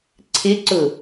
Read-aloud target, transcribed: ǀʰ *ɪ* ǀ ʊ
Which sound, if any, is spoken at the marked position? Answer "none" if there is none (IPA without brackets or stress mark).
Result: ɪ